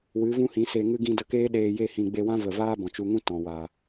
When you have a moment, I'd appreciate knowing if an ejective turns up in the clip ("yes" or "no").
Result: no